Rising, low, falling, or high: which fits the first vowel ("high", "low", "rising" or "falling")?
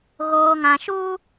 low